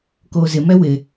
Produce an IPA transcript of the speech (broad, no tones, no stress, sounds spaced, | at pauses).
k oː z ɪ m ɛ w ɪ